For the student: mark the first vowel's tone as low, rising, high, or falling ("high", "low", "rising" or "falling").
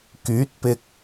rising